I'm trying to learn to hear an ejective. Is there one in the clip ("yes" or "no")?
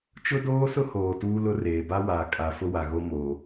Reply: yes